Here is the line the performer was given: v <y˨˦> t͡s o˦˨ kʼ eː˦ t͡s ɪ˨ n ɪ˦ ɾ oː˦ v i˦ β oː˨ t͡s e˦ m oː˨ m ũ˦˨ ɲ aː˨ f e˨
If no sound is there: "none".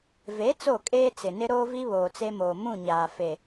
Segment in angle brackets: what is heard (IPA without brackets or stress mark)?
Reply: e˨˦